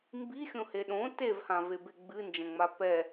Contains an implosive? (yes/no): yes